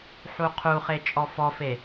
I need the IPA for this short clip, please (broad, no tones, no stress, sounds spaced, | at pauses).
ħ u qʰ u χ e t͡ʃʼ ɔ f ɔ f e